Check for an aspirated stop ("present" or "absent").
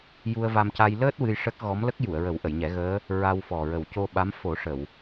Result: absent